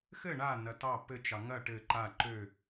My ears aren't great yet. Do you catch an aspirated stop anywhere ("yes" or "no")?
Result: no